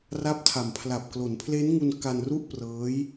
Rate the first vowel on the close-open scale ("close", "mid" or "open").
open